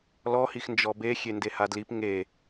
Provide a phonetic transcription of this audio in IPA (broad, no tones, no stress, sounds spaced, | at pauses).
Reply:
l ɔ h i x n d͡ʒ ɔ b e xʲ e n d e h a d l i p ŋ e